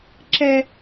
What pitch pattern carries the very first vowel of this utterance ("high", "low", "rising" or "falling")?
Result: high